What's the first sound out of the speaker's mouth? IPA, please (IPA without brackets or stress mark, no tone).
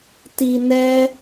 t